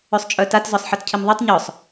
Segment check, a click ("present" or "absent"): absent